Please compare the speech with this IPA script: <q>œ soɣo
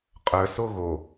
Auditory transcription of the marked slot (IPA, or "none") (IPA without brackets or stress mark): qʼ